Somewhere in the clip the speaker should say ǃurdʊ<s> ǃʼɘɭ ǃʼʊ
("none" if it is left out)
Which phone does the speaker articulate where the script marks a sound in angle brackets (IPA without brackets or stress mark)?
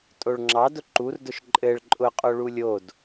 ʃ